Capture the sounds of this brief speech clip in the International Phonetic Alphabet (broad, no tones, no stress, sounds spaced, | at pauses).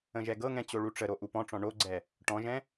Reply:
ə̃ ʒ ɛ ɡ ɤ ŋ ɛ̃ t͡ɕ o ɭ u ʈ͡ʂ ə ɾ o ʔ u p ɔ̃ ʈ͡ʂ ɔ̃ ɳ o ɡ͡ǀ ɛ | ʈ ɔ̃ ʒ ɛ̃